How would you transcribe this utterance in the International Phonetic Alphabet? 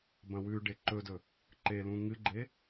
b ɐ̃ w ʉ ɖ e ǃ ɵ d ɵ | ǃ e l ũ ŋ ɨ ɡ͡ǃ e

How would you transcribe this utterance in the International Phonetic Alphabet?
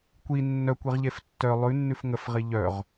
kʷ i nː œ kʷ i ʁ ʎ e f tː œ lˠ ʉ nː ʉ f ŋ ə f ʁ i ʎ œ ʁ

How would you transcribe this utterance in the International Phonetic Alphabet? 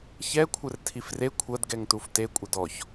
ç ɛ kʷʰ ɘ r tʰ i f r e kʷʰ ɐ d ɡ ɛ ŋ t u f t e kʷʼ ɘ d ɔ ç

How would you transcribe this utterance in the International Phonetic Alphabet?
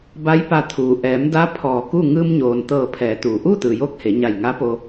b a˧˥ j p a˧ t̪ʰ uː˩ ʔ ɛː˩˧ m d a˧˥ pʰ ɔː˧˩ k u˥˨ ŋ ɯː˧ m ɲ oː˩ n t̪ ɤː˧˩ pʰ ɛː˩˧ t̪ uː˩ ʔ uː˥˨ t̪ ɯː˩ j oː˧˥ k̚ h e˩˧ ɲ a˧˩ j ŋ a˧˥ p o˧

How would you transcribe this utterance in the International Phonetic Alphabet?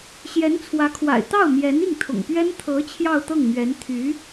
ɕ j ɛ˧˥ n t͡sʰ w ä˧˥ kʰ w a̰˨˩ ɪ̯ t̪ ɑ˥˩ ʊ̯ m j ɛ˧˥ n i˥˩ ŋ t̪ʰ ʊ̰˨˩ ŋ p ɥ ɛ˥ n t̪ʰ ɤ˧˥ t͡ɕʰ j ɑ˥˧ ʊ̯ t̪ ɤ˥˩ ŋ m ɥ ɛ˧˥ n t̪ʰ y˧˥

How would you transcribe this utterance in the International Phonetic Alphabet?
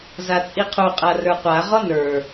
z a t͡sʼ i qʰ u qʼ a r ə˞ qʷ a ʁ ɔ n ə˞

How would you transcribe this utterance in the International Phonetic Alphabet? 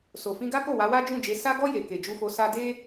s o˨ f ĩ˧ ɡ a˦ k o˦˨ w a˨˦ w a˦ d͡ʒ ũ˦˨ d͡ʒ e˨˦ s a˧ ɡ ɔ˧ j e˨ k e˨ d͡ʒ u˧ f o˧ s a˦ d e˦

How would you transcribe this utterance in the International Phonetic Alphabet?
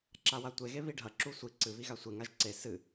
ǁ a w a tʷ e ɣ e β i ɖʱ ɐ ǁ u sʷ i ǀ ɨ β i ɣ a sʷ e ŋ a ʒ ǀ e s ɨ

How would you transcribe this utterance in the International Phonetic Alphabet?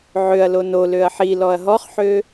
ʕ ø ɐ̯ l o n o l ø ɐ̯ ħ i l ɔ ɐ̯ ɦ ɔ χ ħ ø

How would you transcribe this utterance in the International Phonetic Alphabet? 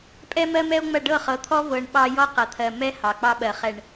pʼ ɛ˦ m ɜ˦ m ɛ˦ o̯ ŋ͡m ɐ˦˨ ɖ ɤ˦˨ χ ɤ˨˦ t̪ʰ ɔ˦ v ɤ˨ ɳ ɓ ɑ˦ j ɔ˦ q ɐ˨ t̪ʰ ɜ˨ m ɛ˦ h ɑ˨ k͡p ɑ˦ ɓ ɜ˨ χ ɛ˨ ɳ

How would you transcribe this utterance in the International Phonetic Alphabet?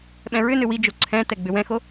ɓ ɛ̃ ɹ ʏ n ʏ w i d͡ʒ o ǀʰ ɛ̃ t ɛ ɡ͡b ʏ w ɛ̃ x o

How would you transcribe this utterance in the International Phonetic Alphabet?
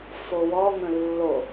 f o w ɔ ŋ ə̃ lː o

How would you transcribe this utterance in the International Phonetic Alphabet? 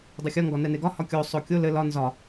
dˤ ɘ xʲ ɒ ŋ ɡ ɒ n ɛ n e ɡ ɒ h ɒ kʲ o sˤ o kʲ o l ɘ l ɒ n z ɒ

